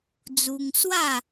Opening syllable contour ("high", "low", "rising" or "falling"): high